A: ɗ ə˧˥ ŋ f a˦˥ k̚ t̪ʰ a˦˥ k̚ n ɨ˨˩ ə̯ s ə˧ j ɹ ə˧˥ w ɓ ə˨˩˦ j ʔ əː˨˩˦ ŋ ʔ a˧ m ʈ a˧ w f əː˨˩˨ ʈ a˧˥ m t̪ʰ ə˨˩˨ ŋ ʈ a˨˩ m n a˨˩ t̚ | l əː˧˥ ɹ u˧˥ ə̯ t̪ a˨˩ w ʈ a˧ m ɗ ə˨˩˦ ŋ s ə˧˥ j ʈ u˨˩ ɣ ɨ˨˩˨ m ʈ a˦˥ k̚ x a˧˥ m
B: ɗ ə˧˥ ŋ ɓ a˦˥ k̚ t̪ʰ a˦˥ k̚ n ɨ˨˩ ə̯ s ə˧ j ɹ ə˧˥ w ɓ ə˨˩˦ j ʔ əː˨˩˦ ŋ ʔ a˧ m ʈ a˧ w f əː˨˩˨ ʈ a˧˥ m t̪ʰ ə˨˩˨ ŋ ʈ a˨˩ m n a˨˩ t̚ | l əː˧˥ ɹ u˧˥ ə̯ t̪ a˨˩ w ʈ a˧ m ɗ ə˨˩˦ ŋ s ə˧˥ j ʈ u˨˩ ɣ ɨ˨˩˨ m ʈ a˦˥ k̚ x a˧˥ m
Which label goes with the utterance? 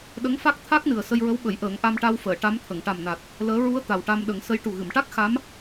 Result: A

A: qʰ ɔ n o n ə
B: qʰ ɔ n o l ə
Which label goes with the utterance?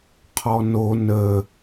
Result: A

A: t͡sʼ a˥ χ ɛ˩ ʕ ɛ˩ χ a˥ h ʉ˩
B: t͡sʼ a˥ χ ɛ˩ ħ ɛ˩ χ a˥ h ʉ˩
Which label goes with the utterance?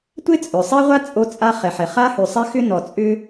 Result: B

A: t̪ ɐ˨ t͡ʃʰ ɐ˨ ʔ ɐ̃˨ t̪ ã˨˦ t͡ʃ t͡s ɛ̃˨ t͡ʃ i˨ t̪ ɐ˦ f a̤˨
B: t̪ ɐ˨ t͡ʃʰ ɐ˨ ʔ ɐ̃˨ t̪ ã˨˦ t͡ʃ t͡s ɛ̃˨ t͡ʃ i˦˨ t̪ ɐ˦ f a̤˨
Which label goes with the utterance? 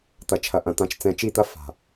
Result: B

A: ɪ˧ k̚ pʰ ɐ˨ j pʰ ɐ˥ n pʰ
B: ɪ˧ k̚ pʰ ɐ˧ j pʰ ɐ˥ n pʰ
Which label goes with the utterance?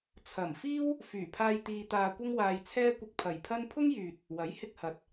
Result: A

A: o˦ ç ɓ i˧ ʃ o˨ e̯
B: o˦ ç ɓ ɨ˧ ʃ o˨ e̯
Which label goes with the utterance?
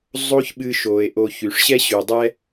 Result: B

